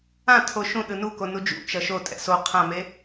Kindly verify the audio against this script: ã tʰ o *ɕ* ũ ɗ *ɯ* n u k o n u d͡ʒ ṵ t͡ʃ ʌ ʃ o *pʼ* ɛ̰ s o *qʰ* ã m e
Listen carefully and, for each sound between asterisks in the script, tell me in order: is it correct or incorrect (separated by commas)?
incorrect, correct, incorrect, correct